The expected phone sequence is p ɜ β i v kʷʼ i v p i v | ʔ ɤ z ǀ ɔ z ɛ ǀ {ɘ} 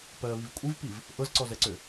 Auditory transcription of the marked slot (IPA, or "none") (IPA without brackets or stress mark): ø